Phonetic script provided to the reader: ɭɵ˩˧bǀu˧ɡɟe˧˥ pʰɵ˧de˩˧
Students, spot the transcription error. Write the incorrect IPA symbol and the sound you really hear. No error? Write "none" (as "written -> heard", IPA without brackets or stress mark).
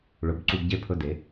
none